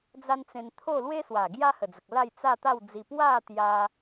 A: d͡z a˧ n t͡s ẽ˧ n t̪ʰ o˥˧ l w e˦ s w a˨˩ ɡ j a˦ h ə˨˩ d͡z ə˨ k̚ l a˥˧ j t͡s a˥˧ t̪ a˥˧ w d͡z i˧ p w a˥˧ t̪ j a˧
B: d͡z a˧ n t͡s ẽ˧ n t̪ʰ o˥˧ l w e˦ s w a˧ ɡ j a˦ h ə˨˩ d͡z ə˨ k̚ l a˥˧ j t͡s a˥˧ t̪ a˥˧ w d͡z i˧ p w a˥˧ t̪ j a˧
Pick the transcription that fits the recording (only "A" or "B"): A